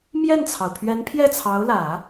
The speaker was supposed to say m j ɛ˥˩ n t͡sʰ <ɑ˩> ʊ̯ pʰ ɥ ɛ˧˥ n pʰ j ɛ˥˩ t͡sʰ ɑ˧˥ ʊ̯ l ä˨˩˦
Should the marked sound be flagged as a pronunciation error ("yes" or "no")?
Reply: no